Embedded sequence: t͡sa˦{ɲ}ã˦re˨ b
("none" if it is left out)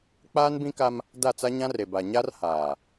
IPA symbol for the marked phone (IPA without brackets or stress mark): ɲ